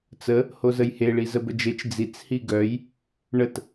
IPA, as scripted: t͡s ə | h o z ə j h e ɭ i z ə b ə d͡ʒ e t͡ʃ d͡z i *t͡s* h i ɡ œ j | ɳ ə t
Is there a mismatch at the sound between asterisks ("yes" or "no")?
no